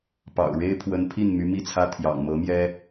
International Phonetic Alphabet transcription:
pɑ̰˨˩ʊ̯ ɻe˥ɪ̯pʰwə˧˥npʰi˥˩n my˧˥mi˥˩t͡sʰä˥ t̪ʰjɑ̰˨˩ŋmɤ˧˥ mjɛ˥

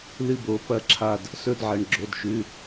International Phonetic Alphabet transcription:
lɨ˦˨bo˩˧˩ pɐ˦˨ǁʰa˦˨d | sɵ˦˨dʕɐ˩˧˩ɳɡ͡ǁo˩˧˩dʃʉ˩˧˩

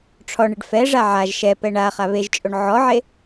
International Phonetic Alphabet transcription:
ʈ͡ʂʰɔɳɪɖ fɛʐa ʕaʒ ʃɛpɛ ɳa χaβeʒt͡ʃʼoɳ ʕɔʕe

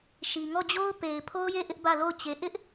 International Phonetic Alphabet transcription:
ʃi˨ŋɔ˦˨d͡ʑo˦ʊ̯ pe˨ɪ̯pʰo˦ʊ̯je˦˨ ʔɪ˦ʔbä˦˨lo˦˨ʊ̯ t͡ɕe˨ʔɪ˦ʔ

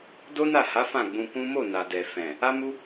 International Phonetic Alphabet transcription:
do˦na˦˨ha˨˦ fã˦˨ɡ͡bũ˧kũ˦ mo˦˨ na˨dɛ˨ fɛ̃˨ | a˦mu˦

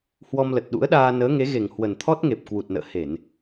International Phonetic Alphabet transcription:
hwɔ˧mlə˨˩t̚ɗṵ˧˥ə̯ɗaː˧ nəː˨˦ŋe˨˦ ɣe˨˩ŋ hwə˨˩nt̪ʰɔ˦˥t̚ŋe˨˩p̚ kwu˨˩t̚nə̰ː˧˨ he˧˩˨n

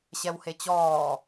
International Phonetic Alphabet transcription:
ɕɛwhet͡ɕɔː

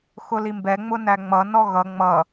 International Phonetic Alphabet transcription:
xʊlimbɛ ŋ͡mʊnæŋ͡mʌ nɔɣʌ ŋ͡mʌ

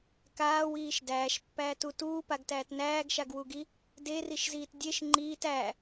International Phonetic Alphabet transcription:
kaːwiːʃ dæːʃpːæːtu tuːpaɡtæːt næːɡʃaɡwuɡi | deriʃziːt dʲeʃ ŋ͡ǃiːt æ

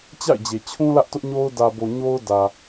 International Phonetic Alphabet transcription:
t͡ɕa̰˦˨ɪ̯d͡ʑe˨ t͡ɕʰũ˦lä˦ʔ tʊ˦ʔɲo˦ʊ̯ dä˨bo˨ ɲo˦ʊ̯ dä˨

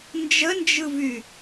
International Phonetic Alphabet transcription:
nd͡ʒənd͡ʒɯvy

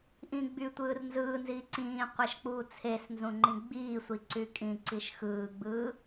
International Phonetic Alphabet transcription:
ʔĩ ɡ͡by tʷɯːrnzɯːnziː ǀĩː qʷæʃk͡puːt͡sʰesnzũ ŋ͡ǃĩɡ͡biːsʷi ǀykʼĩǀiʃ xɯːɡ͡bɯː

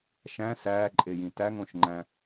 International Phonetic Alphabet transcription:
ʃæ̃ sæːǃʼejĩ tæŋõʃŋ͡ǃæ̃

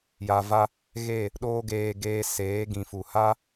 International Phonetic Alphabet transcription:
ja˨va˧ | ɣe˦˨ | ɗoː˦ɡeː˧ ɡeː˧seː˨˦ ɡĩ˨fu˨ha˦

